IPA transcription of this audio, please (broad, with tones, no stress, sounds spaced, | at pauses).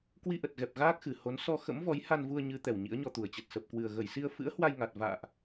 k w i˧ ʔ ə˨˩ t̚ ɣ ɛ˨˩ p̚ ɣ aː˦˥ k̚ x ɨ˨˩ h o˨˦ n s ɔ˧ x ə̰˧˥ m v ɔ˨˦ j h a˧ n v u˧ ə̯ ɲ ɨ˨˦ t̪ ɛ˨˩ w ɲ ḭ˧˥ ə̯ ɲ ɔ˧ t̪ u˧˩ ə̯ t͡ɕ ə˨˩ t̚ s ə˨˩ p̚ k w ɨ˨˩ ə̯ ɣ ə˧˩ j s i˧ ə̯ f ɨ̰˧˥ ə̯ h w a˧ j ŋ a˨˩ t̚ v a̰ː˧˨ ʔ